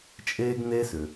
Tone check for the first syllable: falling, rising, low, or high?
high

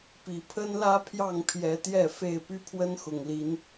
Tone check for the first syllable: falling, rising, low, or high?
low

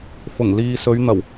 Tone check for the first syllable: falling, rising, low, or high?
low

